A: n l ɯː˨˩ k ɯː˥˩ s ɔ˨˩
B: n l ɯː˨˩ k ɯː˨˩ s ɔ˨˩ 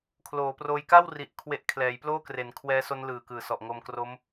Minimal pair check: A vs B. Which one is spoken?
B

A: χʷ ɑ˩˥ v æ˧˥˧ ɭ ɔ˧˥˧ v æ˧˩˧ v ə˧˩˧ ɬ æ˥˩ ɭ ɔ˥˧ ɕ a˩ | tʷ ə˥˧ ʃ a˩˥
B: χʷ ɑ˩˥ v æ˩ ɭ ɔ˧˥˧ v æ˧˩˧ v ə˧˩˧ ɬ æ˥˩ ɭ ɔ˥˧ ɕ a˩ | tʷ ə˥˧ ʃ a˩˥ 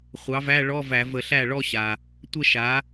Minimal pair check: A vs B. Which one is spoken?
A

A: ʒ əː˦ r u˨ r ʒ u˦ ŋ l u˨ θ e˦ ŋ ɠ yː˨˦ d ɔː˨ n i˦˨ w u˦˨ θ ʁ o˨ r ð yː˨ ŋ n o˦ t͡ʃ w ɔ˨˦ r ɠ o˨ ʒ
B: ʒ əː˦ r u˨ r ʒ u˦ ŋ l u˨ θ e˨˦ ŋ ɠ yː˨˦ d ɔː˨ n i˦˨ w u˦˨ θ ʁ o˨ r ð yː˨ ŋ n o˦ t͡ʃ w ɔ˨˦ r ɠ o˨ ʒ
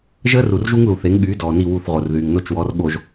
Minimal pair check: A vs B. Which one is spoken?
B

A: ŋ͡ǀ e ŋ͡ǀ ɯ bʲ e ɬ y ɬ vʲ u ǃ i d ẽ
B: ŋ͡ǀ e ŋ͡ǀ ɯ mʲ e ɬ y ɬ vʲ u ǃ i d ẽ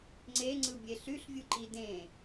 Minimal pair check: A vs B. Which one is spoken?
A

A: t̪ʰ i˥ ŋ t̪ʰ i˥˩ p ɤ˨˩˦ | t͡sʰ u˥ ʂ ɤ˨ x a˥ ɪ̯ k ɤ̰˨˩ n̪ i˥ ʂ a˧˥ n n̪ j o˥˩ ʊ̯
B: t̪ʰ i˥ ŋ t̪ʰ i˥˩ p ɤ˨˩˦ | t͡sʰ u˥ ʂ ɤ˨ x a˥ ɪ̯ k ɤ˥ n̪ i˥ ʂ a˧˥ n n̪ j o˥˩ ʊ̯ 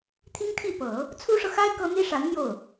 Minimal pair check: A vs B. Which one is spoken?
B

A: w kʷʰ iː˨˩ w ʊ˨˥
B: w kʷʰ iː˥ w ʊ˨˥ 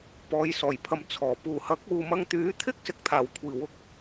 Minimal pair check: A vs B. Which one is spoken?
A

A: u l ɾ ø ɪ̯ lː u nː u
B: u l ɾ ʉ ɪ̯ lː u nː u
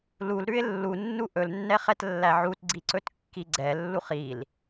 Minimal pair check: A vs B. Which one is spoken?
B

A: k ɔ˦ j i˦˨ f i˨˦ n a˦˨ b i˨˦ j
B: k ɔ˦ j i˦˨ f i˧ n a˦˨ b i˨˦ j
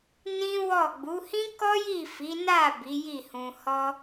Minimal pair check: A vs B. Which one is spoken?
A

